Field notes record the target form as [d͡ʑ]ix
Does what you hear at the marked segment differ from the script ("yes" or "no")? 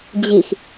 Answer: no